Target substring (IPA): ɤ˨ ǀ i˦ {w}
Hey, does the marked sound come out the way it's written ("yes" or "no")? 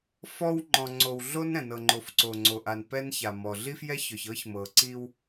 yes